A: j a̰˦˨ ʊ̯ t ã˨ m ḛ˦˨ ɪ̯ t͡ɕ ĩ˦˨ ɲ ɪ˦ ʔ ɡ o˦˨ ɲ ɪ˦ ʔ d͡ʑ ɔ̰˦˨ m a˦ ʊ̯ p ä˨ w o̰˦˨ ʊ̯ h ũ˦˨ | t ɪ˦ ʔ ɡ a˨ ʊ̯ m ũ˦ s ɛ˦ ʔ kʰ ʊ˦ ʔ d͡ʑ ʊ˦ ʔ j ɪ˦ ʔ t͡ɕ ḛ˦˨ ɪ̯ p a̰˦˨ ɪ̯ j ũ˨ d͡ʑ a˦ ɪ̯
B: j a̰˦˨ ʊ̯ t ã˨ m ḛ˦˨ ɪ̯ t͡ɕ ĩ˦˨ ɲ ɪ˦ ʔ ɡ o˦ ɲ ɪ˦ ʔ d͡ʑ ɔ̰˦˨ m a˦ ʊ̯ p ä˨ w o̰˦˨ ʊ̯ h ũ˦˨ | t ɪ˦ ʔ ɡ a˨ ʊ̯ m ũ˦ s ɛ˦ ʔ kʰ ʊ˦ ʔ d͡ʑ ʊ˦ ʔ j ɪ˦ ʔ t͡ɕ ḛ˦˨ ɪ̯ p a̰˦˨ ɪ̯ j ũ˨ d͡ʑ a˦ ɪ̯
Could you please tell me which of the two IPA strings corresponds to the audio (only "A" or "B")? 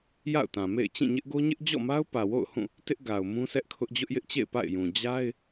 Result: B